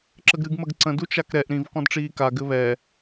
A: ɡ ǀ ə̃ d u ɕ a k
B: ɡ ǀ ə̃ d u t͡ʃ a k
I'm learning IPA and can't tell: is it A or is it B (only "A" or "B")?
B